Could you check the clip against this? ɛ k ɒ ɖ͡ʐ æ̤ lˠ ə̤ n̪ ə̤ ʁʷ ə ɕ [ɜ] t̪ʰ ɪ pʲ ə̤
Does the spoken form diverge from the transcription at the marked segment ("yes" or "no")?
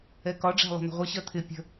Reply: no